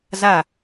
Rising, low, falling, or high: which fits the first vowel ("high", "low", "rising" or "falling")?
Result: falling